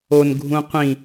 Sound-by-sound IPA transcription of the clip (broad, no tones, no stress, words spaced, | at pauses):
on ɡʱũqʷĩ